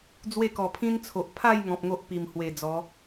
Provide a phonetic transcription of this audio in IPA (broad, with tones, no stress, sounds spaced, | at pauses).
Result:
d͡z w e˥˧ k ɔ˨˩ pʰ ĩ˦ n t͡sʰ o˨ ʔ pʰ a˥˧ j ŋ ɔ̃˨ p̚ ŋ o˦ ʔ p i˨˩ m h w e˨˩ d͡z ɔ˨˦